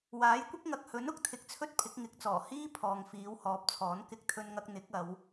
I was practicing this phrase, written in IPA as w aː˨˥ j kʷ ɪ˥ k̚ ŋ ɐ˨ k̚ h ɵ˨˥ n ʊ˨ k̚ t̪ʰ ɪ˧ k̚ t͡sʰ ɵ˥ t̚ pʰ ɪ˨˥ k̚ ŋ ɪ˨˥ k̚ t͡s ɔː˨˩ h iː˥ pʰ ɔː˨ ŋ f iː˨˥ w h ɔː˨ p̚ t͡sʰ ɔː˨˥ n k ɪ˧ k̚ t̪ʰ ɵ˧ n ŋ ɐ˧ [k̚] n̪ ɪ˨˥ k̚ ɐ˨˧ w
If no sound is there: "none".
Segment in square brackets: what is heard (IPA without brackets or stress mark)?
k̚